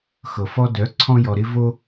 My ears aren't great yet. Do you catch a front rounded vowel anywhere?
yes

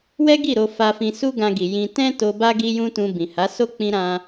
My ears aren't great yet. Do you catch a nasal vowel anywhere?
yes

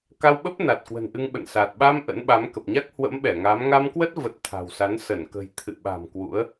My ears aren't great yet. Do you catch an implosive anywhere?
yes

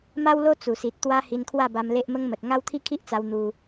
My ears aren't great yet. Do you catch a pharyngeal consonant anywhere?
no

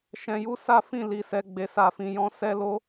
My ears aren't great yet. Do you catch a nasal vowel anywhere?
yes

